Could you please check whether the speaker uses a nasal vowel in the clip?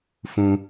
yes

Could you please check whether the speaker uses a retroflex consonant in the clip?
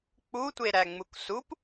no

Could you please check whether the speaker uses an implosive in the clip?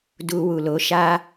no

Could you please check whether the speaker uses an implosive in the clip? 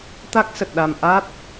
yes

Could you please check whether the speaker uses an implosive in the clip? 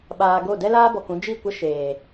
yes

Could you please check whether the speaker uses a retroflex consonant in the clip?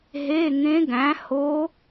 no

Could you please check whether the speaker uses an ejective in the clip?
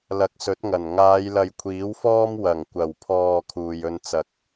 no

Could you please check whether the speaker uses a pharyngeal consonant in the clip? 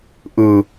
no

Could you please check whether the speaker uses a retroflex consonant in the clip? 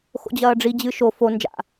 yes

